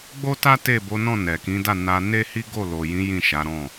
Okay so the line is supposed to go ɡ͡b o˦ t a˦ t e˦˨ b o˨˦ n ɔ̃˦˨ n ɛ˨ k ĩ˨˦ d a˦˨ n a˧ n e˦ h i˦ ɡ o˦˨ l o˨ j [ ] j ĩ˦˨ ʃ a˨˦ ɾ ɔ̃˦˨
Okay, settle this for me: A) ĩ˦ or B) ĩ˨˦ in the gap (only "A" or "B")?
B